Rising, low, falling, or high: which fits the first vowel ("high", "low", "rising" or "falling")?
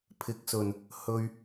rising